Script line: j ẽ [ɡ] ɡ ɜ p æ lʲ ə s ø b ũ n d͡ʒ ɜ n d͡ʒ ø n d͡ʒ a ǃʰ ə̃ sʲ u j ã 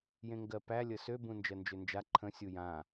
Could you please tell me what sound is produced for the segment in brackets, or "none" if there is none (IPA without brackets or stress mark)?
ŋ